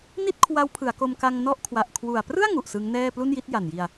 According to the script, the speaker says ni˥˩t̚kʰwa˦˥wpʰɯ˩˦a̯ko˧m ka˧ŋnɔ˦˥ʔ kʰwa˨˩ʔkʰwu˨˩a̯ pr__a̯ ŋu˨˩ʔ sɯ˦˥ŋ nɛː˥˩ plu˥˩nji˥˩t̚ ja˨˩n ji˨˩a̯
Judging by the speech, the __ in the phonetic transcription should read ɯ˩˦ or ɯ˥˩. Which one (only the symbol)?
ɯ˥˩